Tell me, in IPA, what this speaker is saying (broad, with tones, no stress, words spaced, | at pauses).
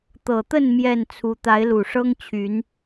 t̪ɤ˨˩t̪ə˥˨n mjɛ˥˨n t͡sʰu˦ t̪a˨˦ɪ̯lu˨˩ʂɤ˦ŋt͡ɕʰy˨˦n